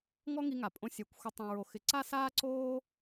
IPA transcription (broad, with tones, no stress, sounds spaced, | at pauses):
ŋ ɔ˦ ŋ i˧ ŋ a˨ pʼ õ˧ sʲ ɛ˨˦ kʷ xʷ ə˧ tˤ õ˨ ɹ o˨ x ɪ˨ ǀ a˦ s aː˦ ǀ oː˦